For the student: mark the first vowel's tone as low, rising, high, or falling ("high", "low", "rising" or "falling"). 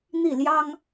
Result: falling